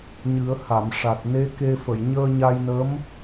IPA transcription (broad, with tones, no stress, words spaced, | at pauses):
ɲɨ˨˩˦ə̯ha˨˩˨mʂa˨˩t̚ ne˧˥ke˧ fə˨˩˨j ɲəː˧ɲa˧jnə˧˥m